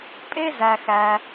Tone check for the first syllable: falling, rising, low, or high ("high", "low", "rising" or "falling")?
high